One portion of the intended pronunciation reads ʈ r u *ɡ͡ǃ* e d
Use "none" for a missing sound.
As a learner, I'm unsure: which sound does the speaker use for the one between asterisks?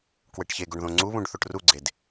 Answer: ɡ͡ǀ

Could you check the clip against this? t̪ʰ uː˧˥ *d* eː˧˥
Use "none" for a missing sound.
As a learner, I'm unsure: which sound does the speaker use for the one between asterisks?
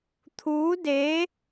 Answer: d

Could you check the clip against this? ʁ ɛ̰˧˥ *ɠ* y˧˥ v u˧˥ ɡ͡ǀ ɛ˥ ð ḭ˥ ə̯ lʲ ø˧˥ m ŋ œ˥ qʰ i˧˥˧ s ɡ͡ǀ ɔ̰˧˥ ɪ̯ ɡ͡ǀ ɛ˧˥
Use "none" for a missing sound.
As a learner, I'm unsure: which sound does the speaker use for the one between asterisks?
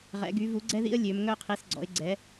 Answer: ɡ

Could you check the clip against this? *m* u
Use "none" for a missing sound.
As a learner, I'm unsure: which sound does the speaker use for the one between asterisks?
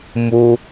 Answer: m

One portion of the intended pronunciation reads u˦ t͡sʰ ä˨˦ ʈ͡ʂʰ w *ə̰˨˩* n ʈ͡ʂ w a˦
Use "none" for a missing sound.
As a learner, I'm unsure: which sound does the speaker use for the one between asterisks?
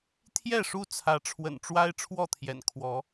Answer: ə̰˨˩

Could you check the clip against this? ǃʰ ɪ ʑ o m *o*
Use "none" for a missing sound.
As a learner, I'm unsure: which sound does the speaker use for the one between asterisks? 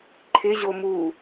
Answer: u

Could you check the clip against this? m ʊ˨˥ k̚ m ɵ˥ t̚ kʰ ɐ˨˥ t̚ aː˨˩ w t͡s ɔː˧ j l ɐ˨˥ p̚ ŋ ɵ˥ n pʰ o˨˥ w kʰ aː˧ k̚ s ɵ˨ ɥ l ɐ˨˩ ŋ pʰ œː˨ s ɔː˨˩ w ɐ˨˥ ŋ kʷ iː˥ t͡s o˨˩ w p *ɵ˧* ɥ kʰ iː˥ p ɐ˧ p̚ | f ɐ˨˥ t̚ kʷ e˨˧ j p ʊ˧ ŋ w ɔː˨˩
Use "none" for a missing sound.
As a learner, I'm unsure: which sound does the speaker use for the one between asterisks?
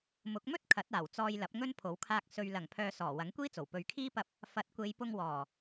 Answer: ɵ˨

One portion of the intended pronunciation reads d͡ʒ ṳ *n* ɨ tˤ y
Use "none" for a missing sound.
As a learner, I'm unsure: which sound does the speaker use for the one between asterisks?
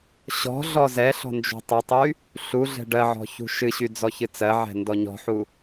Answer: tˤ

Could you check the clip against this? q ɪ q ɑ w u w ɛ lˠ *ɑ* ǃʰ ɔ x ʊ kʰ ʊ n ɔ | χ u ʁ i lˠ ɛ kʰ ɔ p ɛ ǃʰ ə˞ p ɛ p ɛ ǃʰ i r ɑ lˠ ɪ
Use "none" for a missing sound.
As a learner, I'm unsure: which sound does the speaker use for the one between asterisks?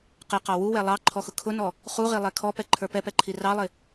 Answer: ɑ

